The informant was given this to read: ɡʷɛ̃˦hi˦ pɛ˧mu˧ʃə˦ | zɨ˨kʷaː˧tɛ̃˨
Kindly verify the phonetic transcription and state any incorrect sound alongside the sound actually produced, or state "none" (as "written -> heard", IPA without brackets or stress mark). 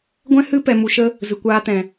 i˦ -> ɨ˦